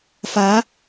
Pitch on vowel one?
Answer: rising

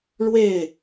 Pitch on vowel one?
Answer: falling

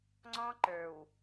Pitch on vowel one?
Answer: high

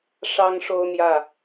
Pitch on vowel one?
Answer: high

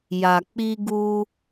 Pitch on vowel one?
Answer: low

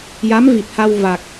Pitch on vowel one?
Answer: rising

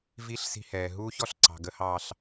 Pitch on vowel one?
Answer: rising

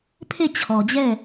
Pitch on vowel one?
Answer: falling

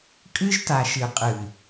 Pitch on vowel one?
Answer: high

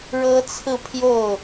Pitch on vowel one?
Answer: high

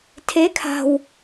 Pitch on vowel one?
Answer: rising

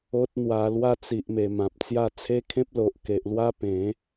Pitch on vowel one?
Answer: high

